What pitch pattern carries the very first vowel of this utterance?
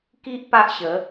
high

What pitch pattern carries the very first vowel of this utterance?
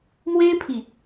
high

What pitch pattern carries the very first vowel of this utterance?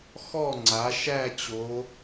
falling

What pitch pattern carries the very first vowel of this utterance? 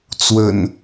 low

